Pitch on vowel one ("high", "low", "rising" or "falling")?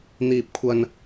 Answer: high